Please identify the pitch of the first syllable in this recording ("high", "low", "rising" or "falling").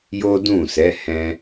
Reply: high